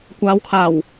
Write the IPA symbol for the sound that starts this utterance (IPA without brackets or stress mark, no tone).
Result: kʷ